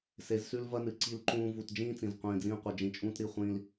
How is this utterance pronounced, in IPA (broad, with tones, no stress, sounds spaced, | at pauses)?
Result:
s e˨˦ z s ʉ˦ l v ɐ˦ n ɨ˨ ǀ i˦ l ǃ ũː˦ v u˨ t d͡ʒ ĩː˦ t͡s ĩ˨ z qʷ ĩː˨ d͡z ĩː˦ qʷ ɨ˨ d͡ʒ ĩ˨ t͡ʃʼ ũː˦ t ɾ i˦˨ χʷ ĩː˦ l